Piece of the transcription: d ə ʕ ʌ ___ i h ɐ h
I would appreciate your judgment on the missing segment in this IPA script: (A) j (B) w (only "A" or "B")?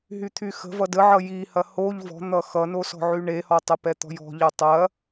A